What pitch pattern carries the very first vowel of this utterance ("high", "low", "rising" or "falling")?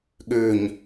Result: low